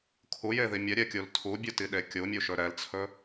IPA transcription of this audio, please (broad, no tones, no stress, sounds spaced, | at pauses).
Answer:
kʰ u j e ð i mʲ ɛ ɾʲ ɛ kʲ u l tʰ u bʲ u t i ɗ e kʲ u mʲ u ʃ ɵ ɾ ɛ l t͡sʰ ɵ